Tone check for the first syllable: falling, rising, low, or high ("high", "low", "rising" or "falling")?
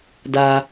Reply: low